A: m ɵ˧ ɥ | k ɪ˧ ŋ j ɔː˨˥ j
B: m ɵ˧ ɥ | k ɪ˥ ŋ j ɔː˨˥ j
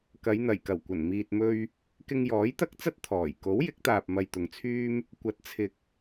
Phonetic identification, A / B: A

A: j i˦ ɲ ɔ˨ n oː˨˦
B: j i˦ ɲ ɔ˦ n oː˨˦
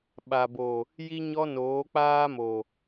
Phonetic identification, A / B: B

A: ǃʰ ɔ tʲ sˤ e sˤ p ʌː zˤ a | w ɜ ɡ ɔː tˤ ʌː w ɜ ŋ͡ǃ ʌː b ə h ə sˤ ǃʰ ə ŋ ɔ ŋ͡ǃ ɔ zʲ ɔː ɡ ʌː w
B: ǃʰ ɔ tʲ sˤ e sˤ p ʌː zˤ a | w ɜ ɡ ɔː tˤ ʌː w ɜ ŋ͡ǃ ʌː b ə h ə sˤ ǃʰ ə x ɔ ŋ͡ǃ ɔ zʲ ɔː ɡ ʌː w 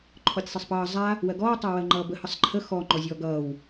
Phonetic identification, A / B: B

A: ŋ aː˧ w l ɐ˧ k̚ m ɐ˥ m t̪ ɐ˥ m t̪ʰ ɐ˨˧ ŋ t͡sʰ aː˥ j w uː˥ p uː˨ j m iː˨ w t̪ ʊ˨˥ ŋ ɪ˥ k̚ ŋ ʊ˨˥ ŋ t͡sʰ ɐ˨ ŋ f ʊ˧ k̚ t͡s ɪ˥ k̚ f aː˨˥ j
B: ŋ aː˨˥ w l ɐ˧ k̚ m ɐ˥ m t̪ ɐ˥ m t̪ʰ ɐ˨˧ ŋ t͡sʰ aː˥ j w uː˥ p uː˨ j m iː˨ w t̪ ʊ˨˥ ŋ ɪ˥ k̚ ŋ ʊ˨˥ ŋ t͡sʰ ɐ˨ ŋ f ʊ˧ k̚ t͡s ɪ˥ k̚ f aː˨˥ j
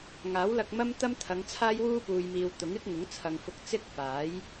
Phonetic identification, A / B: B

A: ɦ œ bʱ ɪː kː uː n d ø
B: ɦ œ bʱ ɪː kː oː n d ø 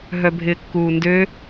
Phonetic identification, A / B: A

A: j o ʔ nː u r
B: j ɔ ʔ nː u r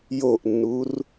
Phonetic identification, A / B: A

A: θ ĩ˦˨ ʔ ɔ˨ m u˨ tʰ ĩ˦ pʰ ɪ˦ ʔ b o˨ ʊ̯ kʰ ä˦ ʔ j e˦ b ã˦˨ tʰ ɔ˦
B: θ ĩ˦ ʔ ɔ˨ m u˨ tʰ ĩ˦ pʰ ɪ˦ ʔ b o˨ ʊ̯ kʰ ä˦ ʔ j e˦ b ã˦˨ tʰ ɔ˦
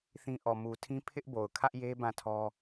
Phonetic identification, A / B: B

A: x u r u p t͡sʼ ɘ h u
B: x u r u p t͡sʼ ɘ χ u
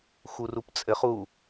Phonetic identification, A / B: B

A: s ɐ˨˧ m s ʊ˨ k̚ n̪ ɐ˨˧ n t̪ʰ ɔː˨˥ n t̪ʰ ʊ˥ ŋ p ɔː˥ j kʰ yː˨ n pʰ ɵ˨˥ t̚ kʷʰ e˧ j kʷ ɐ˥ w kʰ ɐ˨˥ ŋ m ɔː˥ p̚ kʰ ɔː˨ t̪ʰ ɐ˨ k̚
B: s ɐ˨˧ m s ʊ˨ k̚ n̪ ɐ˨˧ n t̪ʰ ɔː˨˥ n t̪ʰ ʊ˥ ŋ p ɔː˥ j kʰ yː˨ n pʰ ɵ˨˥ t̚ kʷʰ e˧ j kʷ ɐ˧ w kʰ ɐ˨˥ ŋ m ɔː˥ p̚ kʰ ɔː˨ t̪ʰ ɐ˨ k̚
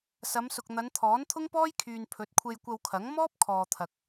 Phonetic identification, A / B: B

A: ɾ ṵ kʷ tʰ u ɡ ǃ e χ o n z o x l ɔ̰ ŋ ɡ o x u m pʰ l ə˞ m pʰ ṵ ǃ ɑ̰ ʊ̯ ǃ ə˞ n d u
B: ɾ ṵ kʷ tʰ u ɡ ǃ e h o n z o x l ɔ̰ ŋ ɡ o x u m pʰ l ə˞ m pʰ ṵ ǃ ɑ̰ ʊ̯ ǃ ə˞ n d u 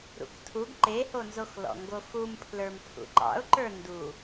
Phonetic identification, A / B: B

